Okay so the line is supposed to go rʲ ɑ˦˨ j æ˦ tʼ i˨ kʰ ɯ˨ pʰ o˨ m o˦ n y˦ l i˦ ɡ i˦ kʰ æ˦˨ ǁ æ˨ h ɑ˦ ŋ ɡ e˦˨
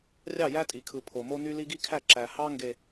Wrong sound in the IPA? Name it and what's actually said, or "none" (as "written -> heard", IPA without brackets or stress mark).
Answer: e˦˨ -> e˨